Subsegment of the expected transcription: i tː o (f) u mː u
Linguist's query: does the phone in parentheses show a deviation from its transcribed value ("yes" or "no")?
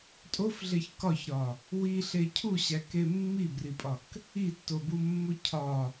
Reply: yes